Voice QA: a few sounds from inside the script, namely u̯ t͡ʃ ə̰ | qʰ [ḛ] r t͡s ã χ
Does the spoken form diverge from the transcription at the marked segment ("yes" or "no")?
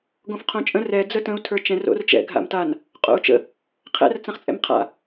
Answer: yes